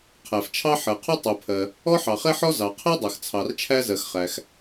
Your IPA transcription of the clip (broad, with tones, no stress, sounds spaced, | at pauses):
qʰ æ˩ f t͡ʃʰ ɑ˥ ħ ɜ˩ qʰ u˥ tˤ u˩ pʰ ɜ˩ | ɔ˥ ħ ɑ˩ χ ɛ˥ ħ ɔ˥ z ɑ˩ qʰ ɛ˥ dˤ ɜ˩ x t͡sʰ ɑ˩ r t͡ʃʰ æ˥ z ɜ˩ x χ æ˩ x